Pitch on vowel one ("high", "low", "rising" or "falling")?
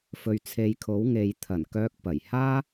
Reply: low